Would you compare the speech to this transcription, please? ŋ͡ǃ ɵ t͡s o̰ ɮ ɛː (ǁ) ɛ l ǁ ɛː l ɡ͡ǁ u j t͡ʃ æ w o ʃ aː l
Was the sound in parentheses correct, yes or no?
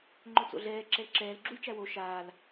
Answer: yes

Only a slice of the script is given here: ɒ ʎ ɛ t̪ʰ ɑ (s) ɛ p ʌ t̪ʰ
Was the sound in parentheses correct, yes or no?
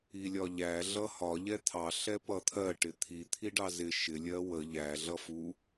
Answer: no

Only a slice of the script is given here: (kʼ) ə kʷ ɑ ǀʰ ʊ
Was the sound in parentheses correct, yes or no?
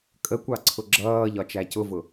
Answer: yes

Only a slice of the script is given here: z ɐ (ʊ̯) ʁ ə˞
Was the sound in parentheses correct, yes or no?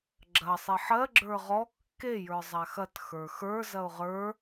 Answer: yes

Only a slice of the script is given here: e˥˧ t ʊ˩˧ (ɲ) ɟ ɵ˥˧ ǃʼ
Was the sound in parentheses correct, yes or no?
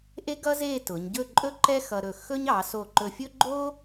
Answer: yes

